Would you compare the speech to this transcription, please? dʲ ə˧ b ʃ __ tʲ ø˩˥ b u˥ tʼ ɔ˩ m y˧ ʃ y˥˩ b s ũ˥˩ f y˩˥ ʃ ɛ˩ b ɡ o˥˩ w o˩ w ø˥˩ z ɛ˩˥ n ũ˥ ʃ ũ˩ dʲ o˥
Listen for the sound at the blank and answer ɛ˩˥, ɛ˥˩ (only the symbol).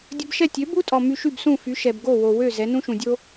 ɛ˥˩